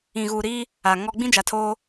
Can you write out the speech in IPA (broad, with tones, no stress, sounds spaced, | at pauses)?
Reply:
ĩ˨ ɣ uː˨ ɾ iː˦ | a˨ ŋ ɔ˦ ɡ͡b ĩ˦ d͡ʒ a˨ tʰ oː˦